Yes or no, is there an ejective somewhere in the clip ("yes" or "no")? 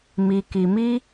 no